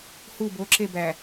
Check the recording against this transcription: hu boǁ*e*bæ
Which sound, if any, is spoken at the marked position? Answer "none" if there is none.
e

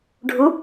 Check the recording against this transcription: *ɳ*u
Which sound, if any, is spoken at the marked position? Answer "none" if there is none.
ɖʱ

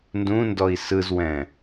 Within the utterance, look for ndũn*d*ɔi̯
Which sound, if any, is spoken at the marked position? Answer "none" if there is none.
d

